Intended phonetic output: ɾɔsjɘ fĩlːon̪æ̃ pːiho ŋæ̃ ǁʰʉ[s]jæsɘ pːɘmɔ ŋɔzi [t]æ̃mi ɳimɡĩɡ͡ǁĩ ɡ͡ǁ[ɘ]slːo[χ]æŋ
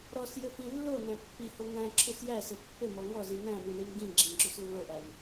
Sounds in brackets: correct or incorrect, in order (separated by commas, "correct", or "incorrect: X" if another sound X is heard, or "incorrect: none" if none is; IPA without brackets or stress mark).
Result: correct, incorrect: n̪, incorrect: ʉ, incorrect: ʔ